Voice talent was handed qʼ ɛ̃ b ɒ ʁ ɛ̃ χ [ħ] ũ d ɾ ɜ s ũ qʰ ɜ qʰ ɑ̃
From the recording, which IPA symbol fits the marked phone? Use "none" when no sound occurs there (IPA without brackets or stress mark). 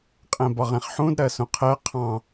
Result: ħ